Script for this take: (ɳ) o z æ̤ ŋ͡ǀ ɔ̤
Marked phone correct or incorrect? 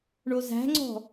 correct